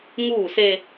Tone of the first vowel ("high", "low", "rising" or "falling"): falling